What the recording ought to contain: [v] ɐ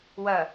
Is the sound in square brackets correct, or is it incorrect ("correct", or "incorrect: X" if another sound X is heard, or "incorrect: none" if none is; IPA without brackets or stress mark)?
incorrect: w